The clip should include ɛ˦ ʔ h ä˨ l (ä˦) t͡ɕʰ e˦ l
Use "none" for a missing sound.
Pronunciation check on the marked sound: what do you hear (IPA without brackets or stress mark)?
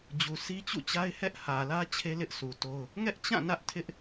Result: ä˦